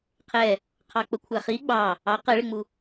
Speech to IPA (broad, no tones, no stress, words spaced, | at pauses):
qʰɛ | qʰɑk͡pəkʷʰæχi ɡ͡bɑ | ɑ qɛɭɪŋ͡mu